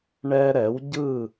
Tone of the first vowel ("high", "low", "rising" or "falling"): high